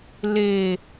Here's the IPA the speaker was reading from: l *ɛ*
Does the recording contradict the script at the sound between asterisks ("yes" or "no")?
yes